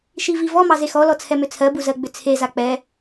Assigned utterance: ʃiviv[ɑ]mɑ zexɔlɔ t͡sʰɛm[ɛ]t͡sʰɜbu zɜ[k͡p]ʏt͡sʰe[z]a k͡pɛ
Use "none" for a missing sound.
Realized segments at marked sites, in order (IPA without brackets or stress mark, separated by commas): ɔ, ʏ, ɡ͡b, z